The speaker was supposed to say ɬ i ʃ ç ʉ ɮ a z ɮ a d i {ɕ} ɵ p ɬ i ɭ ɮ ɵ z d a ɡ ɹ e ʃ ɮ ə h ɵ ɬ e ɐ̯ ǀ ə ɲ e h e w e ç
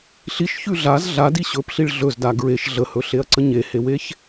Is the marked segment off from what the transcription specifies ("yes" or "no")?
no